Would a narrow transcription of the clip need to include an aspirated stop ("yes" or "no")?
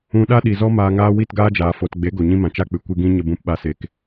no